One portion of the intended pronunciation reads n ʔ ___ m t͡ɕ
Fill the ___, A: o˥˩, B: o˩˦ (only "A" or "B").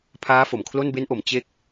B